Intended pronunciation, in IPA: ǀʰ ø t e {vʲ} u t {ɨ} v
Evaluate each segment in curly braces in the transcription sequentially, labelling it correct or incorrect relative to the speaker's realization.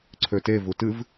incorrect: v, correct

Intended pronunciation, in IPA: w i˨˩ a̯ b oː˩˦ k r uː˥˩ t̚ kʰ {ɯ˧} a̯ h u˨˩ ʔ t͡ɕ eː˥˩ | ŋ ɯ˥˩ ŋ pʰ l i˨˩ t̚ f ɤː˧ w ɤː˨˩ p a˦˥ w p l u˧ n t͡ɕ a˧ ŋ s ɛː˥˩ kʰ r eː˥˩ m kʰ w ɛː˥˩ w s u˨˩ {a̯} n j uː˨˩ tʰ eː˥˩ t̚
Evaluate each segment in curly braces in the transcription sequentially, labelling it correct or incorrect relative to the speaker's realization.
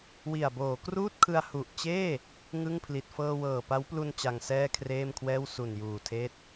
correct, incorrect: none

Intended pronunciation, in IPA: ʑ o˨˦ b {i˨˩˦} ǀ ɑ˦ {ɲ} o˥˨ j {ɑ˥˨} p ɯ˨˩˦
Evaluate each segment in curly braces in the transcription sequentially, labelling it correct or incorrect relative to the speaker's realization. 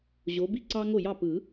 incorrect: i˥˨, incorrect: ŋ, correct

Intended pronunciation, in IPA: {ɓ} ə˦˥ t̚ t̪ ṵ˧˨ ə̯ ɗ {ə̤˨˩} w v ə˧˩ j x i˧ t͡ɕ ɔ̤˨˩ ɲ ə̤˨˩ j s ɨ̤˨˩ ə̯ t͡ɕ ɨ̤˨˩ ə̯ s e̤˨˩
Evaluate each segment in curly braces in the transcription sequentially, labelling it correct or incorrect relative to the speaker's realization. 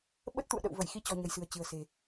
correct, incorrect: ə̰˧˨

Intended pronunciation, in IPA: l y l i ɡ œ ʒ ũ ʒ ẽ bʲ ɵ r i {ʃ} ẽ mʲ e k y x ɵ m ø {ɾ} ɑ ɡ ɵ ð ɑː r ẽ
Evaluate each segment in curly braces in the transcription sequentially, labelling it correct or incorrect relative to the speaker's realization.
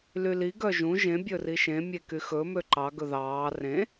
correct, incorrect: ǃ

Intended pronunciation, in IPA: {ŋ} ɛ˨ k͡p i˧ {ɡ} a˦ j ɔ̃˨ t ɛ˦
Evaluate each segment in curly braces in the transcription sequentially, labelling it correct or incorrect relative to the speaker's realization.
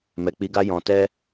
incorrect: m, correct

